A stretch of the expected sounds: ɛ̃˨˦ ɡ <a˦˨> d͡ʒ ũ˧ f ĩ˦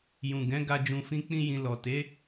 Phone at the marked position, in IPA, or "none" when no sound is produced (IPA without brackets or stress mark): a˧